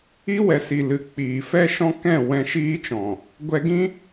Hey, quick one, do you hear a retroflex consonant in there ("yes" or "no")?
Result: no